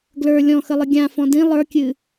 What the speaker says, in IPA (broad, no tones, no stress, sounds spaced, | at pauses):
ɡ l ə˞ lʲ ɔ̃ x ə lˠ ɨ ɡʲ ã f ɔ̃ d ĩ lˠ ə˞ kʲ ɨ